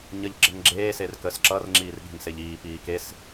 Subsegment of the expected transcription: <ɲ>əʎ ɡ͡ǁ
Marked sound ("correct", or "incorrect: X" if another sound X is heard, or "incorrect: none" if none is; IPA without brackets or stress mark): correct